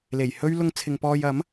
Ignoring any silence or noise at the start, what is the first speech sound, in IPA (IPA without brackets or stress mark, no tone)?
l